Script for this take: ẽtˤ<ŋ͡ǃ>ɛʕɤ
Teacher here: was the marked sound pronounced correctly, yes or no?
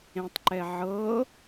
no